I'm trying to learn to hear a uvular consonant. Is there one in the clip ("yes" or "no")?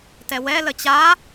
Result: no